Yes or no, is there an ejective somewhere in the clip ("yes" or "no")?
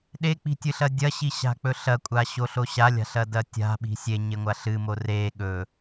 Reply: yes